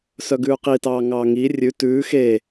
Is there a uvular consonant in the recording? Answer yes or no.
yes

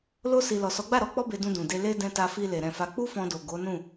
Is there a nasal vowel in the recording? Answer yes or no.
yes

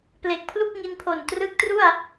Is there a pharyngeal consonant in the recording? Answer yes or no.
no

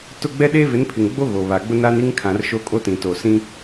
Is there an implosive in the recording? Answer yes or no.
yes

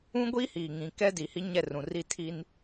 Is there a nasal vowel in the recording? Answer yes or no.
yes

